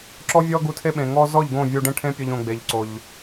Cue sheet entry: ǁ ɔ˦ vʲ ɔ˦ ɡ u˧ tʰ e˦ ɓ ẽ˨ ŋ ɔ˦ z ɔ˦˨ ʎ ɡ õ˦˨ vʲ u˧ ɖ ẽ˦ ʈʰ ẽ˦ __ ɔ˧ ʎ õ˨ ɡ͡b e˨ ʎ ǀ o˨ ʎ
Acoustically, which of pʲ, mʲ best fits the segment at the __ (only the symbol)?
pʲ